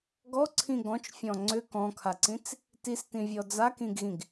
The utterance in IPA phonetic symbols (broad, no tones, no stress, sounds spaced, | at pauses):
ɡ ɔ ǀʰ ĩ ɡ ɔ̃ t͡ʃ fʲ ɔ̃ ŋ͡ǀ ʏ k ɔ̃ kʰ a ǀ ĩ t͡s | t i s t ĩ vʲ ɔ d͡z a k ĩ ɡ ɣ ĩ ɡ